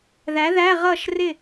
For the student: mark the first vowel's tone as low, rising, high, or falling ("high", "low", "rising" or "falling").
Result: rising